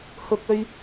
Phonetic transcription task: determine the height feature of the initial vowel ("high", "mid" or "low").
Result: high